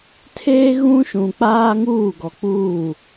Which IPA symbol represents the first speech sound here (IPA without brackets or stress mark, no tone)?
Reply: tʰ